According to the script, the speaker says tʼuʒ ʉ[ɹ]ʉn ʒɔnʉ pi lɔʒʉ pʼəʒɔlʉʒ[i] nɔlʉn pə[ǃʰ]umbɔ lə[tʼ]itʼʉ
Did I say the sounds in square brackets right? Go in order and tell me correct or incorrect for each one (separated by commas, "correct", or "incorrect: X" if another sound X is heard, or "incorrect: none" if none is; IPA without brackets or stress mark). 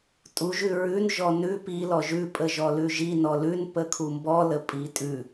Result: correct, correct, incorrect: kʰ, incorrect: pʼ